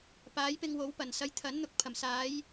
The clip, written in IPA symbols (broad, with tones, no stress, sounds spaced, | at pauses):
p aː˨˥ j p ɪ˧ ŋ w o˨˥ w p ɐ˨˩ n s ɐ˨˧ j t̪ʰ ɐ˨˥ n n̪ ʊ˧ k̚ pʰ ɐ˨˩ m s aː˨˧ j